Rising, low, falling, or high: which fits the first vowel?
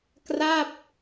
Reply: falling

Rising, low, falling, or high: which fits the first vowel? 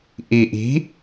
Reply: low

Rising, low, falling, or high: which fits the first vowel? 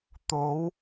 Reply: rising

